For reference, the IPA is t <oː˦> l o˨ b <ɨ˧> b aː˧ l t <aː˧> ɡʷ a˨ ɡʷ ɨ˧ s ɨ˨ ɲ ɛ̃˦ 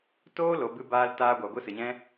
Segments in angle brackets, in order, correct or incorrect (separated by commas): correct, correct, correct